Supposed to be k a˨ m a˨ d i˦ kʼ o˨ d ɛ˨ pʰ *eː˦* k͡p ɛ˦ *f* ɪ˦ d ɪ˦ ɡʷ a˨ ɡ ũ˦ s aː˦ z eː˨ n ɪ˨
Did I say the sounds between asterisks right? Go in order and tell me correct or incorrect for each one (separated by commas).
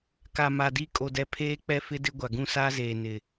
correct, correct